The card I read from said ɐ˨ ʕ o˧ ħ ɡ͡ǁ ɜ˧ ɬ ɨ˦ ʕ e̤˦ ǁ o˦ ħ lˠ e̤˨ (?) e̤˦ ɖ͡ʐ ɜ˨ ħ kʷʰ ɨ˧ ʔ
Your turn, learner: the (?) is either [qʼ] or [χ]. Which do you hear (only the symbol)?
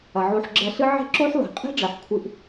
qʼ